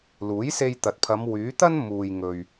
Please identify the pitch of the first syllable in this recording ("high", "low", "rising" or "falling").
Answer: rising